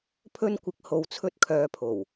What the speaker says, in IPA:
pʰɵ˧nkʷɪ˨k̚ ho˨˧wt͡sʰɵ˧t̚kʰœː˨˧pʰo˨˩w

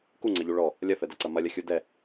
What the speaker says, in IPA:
kuŋ͡ǀɐʎu ɭɔ | lʲɐfɛdɐǀɐ mɐlʲɐxʲu dɛ

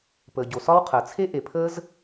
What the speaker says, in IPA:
pəː˩ɟo˩sɒ˥wqʰəː˩ t͡sʰe˥ʔe˩pʰəː˥z

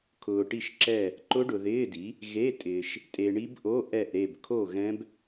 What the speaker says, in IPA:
kʰʊː˨ʈi˥˨ʃǁɛ˥˨ | ǃʊ˦˥ɖʊ˨ðɪː˧˥˧di˩˥ | ɣe˧˥˧tʼɪː˨ʃ | tʼe˨ɳi˦˥b ʔo˧˥˧ ʔɛ˥˨ʔɾe˥˨b kʰo˥˨ɣɛ̃˦˥b

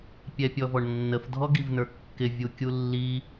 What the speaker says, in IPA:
pʲɛpʲɔvɔɳnːəf dʱɔɡivnə˞kːɪ vʲukʲulːi

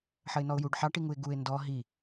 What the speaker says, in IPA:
ħəɪ̯nɔʊ̯juɖ ħɑʈiŋuɪ̯ ɡuɪ̯ ndɔ ɦi

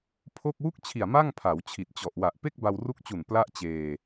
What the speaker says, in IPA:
pʰo˥˩k̚ wu˥˩k̚t͡ɕʰi˨˩a̯ ma˥˩ŋpʰa˩˦wt͡ɕʰi˨˩t̚ t͡ɕɔ˨˩ʔwa˨˩ʔ pe˥˩k̚ba˧wru˦˥k̚t͡ɕu˨˩n pla˥˩ʔt͡ɕeː˧

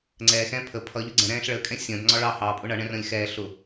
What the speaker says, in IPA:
ŋ͡ǀɛːxɛ̃ː pʰə pʰʌʎʊ ɡ͡ǀɛ̃ɾɛ̃ːɬ ɭəkʼɛ̃ sʲə̃ːdŋ͡ǀɒ ɭɑ hɑpʼʊ ɳʌɳɛ̃rə̃ːlʲ xɛː ɬʊ

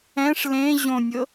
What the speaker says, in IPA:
ɛ̃ʂ lẽ ʑõnʲɤ

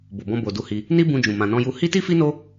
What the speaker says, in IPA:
bo˨bɔ̃˧ bo˨du˧hi˧ | ni˦bũ˧d͡ʒũ˨ mã˨nɔ̃˧ju˧ hi˦ti˦fi˦no˦

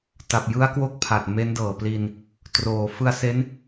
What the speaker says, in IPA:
ta˨˩p̚jɯ˦˥a̯kwo˦˥k̚ pʰa˨˩t̚ me˦˥ndɤː˨˩pli˧n | troː˩˦ fɯ˧a̯se˦˥n

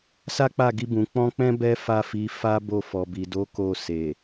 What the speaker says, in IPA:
sa˦k͡pa˦˨ɡi˧bũ˨ k͡pɔ̃˧ k͡pɛ̃˦ bɛ˦fa˦˨fi˨˦ fa˦ bo˧fɔ˨bi˨ do˨˦ ko˧ se˨

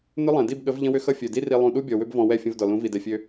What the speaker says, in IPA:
nʏ˦lˠɛ̃˨ di˦˨bɠə˨˦v ʎə̃˦wʏ˦xʌ˦ fʲø˨di˦ ri˧ lˠũ˧ ɗu˦bʲɔ˨wʏ˦b vɔ̃˧wɛ˦˨fʲə̃˧v dɔ˨lũ˨˦ vi˨dɛ˨fʲø˧

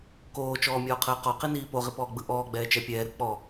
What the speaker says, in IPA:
koːt͡ʃɔːmʲɔːqʰəː qɔqiniː poʁipɔːɡ͡bɯ ʔɔːɡ͡bɛːt͡ʃɛ pʲɛːɾɯ k͡pɔ

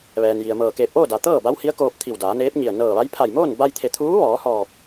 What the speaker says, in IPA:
ʋɛː˩nji˩ə̯mɤː˧˩ keː˧˩p̚ʔoː˥˨da˩ t̪ɤː˥˨ba˧˥whi˧˥ə̯ koː˧p̚ t̪ʰi˧˩wdaː˩˧ neː˧˥p̚ɲi˧˩ə̯ nɤː˧˩ʋa˧˥j pʰa˧˩jmoː˥˨nba˧jt̪ʰe˧˩ t̪ʰuː˧˥ʋɔː˩˧hɔː˧˩p̚

